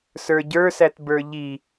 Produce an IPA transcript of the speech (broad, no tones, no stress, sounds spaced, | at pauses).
s ə˞ ɟ ə˞ s æ t b ə˞ ʎ i